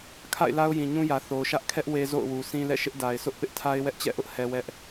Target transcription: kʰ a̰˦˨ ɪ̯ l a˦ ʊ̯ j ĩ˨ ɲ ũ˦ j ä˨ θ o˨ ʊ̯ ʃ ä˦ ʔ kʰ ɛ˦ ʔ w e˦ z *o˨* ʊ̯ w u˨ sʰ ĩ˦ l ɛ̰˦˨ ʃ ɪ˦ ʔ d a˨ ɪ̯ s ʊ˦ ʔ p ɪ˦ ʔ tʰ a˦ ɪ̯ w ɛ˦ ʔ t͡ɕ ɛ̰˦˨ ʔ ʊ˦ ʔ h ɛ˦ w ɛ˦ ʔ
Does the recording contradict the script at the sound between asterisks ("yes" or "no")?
yes